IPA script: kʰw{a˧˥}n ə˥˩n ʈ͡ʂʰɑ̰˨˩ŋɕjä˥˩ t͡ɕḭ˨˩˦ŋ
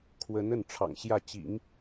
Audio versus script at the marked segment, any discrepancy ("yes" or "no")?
yes